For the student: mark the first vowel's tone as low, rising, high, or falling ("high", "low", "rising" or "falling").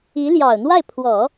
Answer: rising